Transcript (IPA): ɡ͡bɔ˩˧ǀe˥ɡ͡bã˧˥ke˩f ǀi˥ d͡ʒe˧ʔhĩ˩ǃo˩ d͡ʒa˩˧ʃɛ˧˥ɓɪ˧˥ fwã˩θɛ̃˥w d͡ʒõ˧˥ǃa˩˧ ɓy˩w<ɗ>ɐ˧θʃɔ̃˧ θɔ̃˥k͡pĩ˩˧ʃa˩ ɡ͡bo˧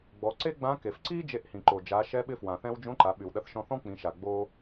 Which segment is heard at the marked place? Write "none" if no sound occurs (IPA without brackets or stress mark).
ɗ